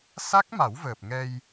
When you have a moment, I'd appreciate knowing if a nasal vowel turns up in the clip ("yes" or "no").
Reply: no